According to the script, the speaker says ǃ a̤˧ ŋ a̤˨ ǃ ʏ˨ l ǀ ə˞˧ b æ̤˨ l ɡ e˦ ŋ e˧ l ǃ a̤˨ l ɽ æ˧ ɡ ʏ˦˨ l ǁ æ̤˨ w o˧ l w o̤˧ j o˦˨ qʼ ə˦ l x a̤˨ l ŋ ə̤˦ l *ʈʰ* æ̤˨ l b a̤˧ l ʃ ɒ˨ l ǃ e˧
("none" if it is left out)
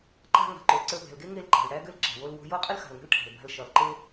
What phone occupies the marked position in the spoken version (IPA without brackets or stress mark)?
ʈʰ